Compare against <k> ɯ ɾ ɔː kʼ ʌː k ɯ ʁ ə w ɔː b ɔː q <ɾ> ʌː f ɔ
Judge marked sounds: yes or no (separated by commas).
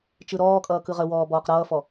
no, yes